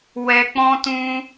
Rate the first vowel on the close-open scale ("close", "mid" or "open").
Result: mid